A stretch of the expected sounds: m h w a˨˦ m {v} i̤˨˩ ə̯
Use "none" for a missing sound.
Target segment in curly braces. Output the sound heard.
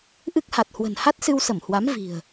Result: v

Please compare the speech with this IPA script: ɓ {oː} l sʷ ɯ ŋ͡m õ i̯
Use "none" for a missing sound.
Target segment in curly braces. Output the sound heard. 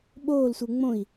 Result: oː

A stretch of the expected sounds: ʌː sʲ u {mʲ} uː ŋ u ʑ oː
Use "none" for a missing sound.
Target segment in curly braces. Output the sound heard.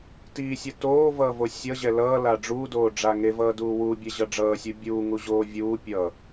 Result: bʲ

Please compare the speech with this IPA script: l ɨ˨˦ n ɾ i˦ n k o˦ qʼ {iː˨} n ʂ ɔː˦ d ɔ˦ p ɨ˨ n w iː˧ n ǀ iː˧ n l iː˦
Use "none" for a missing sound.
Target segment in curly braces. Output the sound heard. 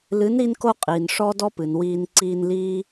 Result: iː˨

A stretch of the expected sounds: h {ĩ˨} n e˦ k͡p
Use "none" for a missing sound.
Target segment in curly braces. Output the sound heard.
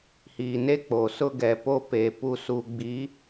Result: i˨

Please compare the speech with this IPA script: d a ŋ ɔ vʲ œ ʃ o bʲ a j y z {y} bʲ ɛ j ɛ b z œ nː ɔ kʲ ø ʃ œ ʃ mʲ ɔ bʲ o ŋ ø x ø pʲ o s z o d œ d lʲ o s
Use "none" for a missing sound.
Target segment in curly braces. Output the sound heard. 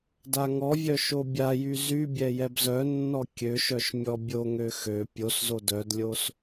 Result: y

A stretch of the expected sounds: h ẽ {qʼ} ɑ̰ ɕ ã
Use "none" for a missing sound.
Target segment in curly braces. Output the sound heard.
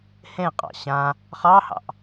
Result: qʼ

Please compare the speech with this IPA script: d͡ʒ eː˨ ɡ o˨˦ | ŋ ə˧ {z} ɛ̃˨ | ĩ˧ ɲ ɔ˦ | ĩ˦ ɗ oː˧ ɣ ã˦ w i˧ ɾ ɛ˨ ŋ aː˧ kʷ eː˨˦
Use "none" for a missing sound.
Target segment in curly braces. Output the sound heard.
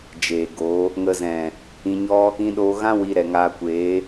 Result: z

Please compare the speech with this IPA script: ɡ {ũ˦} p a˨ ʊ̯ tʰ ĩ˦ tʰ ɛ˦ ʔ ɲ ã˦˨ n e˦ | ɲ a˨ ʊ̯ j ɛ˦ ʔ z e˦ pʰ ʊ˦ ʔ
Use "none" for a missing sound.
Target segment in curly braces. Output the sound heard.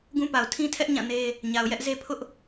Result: ũ˦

